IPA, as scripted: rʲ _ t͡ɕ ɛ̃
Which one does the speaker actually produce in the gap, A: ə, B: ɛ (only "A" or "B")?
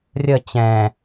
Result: A